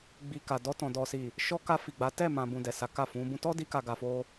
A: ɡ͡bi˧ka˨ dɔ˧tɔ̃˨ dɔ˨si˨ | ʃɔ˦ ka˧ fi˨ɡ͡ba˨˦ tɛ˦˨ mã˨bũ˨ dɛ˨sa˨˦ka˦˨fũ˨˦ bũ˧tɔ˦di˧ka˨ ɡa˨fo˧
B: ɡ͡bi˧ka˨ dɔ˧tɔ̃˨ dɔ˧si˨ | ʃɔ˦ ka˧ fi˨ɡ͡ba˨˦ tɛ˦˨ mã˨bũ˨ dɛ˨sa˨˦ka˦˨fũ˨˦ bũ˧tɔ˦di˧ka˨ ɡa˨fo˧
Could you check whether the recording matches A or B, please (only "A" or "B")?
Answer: A